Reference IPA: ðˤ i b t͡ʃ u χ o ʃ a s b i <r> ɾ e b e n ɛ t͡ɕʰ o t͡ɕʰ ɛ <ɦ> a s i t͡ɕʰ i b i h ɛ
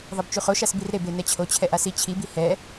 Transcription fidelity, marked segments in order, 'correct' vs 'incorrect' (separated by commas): correct, incorrect